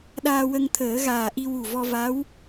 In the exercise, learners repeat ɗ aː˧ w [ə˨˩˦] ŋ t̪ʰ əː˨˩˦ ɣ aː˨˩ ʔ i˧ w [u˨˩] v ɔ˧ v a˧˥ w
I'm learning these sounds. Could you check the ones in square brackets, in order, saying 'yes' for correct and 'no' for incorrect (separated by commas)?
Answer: no, yes